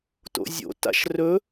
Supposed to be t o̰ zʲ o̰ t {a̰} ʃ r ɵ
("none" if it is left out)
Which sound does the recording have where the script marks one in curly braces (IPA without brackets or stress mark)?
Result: a̰